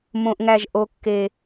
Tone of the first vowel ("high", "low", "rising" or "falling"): high